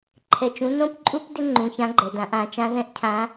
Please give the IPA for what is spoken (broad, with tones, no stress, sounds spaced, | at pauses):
ǃʰ ɛ˧ t͡ʃ ũ˧˥ n õ˥ p ǃʼ u˥ p d ɪ˥ ŋ͡ǃ ũ˧ ç ã˧˥ ɡ͡ǃ ɛ˩ d ã˩˧ ʔ ã˩˧ t͡ʃ ã˧˥ ð ɛ̃˥ ʔ cʰ ã˧˥